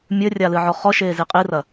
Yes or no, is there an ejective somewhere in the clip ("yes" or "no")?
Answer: yes